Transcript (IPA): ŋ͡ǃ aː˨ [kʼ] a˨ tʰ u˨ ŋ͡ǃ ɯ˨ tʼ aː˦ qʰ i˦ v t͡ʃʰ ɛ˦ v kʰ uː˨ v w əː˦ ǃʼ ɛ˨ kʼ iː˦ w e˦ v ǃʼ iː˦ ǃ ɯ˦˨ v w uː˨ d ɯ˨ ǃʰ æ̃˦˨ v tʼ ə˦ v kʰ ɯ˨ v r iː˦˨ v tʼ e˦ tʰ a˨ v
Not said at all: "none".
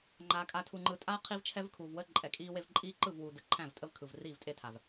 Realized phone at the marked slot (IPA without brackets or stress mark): kʼ